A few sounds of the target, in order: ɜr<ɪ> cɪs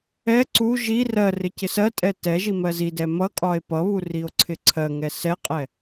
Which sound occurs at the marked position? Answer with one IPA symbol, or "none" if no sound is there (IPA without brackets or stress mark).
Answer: ɪ